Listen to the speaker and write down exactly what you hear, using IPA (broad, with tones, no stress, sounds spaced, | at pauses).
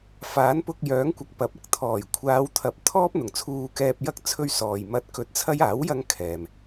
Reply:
f aː˨˥ n p ʊ˧ k̚ j œː˨˥ ŋ kʷ ɐ˨ k̚ p ɐ˨˥ p̚ ɐ˨ k̚ t̪ʰ ɔː˨˩ j kʷʰ aː˨˧ w t̪ʰ ɐ˨˥ p̚ t̪ʰ ɔː˥ p̚ n̪ ʊ˨˩ ŋ t͡sʰ uː˧ k ɛː˧ p̚ j ɐ˥ k̚ t͡sʰ ɵ˥ ɥ s ɔː˨ j m ɐ˧ t̚ k ɵ˧ t̚ t͡sʰ ɐ˥ j aː˨˥ w j ɐ˧ ŋ kʰ ɛː˨ m